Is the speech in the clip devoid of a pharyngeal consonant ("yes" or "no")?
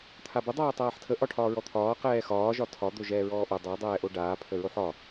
no